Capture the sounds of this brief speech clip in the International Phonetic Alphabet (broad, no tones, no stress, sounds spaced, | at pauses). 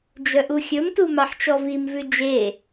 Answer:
d͡ʒ œ ʔ u xʲ ɵ m t u m ɑ ħ t͡ʃ ɔ v i m v ʉ d͡ʒ e